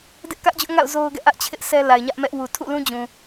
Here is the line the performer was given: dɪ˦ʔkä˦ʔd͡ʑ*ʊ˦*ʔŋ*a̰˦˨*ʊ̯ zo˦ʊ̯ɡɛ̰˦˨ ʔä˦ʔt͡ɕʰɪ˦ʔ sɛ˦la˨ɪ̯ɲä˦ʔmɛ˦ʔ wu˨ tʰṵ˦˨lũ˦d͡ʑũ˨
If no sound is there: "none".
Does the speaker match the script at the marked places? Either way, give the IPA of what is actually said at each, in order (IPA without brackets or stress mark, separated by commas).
ʊ˦, a̰˦˨